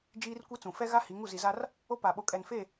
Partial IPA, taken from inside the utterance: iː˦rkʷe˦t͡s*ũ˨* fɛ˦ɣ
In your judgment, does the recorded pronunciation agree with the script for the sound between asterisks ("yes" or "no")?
yes